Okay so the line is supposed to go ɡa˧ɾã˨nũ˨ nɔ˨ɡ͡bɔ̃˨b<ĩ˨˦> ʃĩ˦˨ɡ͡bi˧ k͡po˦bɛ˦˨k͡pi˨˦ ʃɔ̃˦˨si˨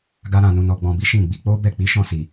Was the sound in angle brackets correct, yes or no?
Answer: no